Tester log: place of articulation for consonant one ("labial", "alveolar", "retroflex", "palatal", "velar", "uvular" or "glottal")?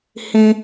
glottal